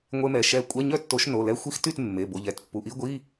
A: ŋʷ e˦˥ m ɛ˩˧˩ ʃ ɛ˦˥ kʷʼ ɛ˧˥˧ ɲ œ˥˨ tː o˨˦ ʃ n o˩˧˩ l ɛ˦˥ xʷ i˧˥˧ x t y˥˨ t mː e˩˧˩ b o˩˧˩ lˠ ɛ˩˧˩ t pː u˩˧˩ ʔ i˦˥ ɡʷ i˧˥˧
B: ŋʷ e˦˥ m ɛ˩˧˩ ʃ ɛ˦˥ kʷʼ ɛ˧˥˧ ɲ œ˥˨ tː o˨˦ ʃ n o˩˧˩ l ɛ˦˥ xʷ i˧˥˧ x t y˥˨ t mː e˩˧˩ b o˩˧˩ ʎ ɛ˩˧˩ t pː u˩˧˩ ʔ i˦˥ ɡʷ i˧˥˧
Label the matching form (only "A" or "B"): B